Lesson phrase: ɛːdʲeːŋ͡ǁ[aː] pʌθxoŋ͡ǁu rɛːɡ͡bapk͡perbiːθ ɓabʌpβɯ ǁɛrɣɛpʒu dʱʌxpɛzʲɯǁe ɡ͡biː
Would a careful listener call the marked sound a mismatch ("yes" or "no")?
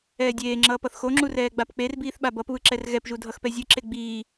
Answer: yes